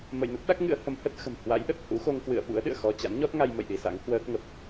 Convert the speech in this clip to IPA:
mə̰ː˧˨jnə˦˥t̚ɗa˦˥k̚ ŋɨ̰˧˥ə̯hə˨˦mhə˦˥t̚ xə̤˨˩m hwa̰˧˥jɗə˨˩t̚hṵ˧˥xo˧ŋ kwɨ̰˧˨ə̯ ɓṵ˧˥ə̯ɗɨ̰˧˨ə̯ xɔ˧ t͡ɕa̰˧˥nɲɔ˦˥t̚ŋa˧jmə̰˧˨j ɗi˧sa̰˧˥ŋ hwəː˦˥k̚ŋə˨˩p̚

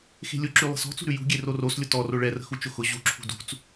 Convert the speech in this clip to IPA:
xe̤lʲʊǁy lˠə̤sɔ̤t͡sṳɾʉ jṳɡʲe roroslʲʊ tɔro ɭɛrə̤xu t͡ʃʊxʊ ʑuǁʰṳ dṳt͡s

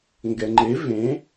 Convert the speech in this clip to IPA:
ŋɡɛŋ͡ǃe vẽ

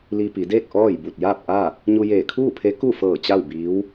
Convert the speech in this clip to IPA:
li˧pi˩˧deː˥˨k̚ ʔɔː˥˨j bu˧˩t̚jaː˥˨p̚ʔa˥˨ | ɲu˧jeː˧˩kʰuː˥˨pʰe˧˥ ku˥˨fɤː˧˩ t͡ɕa˥˨wbiː˧˥w

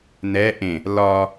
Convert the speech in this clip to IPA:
nɛ ʔẽ | lɒ

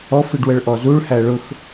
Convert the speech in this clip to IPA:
ɔfiɖ wəɭʔɔzuɭhæ ɭʊx

